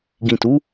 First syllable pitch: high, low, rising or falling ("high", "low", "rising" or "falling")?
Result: low